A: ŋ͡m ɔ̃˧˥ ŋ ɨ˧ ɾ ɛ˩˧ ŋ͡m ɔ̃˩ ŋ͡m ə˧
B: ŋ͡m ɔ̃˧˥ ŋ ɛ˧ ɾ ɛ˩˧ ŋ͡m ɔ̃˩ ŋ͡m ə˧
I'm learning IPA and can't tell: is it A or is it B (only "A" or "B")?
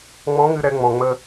A